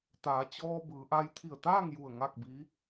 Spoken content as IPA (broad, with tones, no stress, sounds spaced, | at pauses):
t̪ aː˩˧ t͡ɕ ɔː˧ b ɯː˩˧ ʔ a˧ j t̪ʰ i˧˩ ə̯ t̪ aː˥˨ ŋ j u˧˩ ə̯ ŋ a˥˨ k̚ b i˧˥